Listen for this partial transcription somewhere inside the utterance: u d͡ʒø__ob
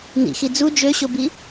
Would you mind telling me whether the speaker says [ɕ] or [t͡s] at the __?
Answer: ɕ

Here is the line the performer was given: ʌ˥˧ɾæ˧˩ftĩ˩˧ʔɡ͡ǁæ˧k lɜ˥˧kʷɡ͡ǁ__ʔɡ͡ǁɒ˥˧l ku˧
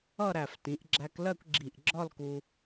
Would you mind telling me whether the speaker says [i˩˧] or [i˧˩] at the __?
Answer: i˧˩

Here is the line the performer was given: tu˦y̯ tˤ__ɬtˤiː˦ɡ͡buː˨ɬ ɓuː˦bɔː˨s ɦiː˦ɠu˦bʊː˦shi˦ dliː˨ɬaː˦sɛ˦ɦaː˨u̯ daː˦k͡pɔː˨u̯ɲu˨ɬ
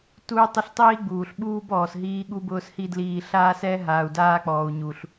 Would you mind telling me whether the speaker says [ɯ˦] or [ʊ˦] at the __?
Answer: ʊ˦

